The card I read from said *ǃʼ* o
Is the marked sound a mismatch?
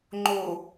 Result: yes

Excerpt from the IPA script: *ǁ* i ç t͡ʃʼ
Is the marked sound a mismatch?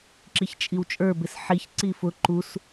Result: no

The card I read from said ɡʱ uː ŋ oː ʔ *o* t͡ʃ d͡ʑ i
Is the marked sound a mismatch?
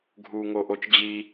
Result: no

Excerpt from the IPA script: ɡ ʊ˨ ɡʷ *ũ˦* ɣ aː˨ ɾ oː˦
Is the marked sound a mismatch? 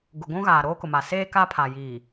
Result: no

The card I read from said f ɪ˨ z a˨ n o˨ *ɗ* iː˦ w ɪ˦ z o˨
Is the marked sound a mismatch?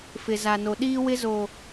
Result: no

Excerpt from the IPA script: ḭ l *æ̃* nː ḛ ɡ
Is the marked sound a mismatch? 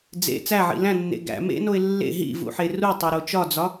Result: no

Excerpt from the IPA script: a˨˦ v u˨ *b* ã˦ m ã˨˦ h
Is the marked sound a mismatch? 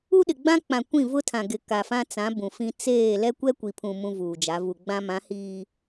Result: yes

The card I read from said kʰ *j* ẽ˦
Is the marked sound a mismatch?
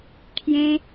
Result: no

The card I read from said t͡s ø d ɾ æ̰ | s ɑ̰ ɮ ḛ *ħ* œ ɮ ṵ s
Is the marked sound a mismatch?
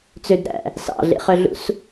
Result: yes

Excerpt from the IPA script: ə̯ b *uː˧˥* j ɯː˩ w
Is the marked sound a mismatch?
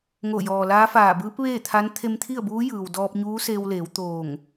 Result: no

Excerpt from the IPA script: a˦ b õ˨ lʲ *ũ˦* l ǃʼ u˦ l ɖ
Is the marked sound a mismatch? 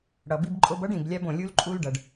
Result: yes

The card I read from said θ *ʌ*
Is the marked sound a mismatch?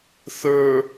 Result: yes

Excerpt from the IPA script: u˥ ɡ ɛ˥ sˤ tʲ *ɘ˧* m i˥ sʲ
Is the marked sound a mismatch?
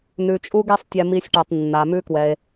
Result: yes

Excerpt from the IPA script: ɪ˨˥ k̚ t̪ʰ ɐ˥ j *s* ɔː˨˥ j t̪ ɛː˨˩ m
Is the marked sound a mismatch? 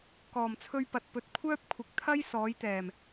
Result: no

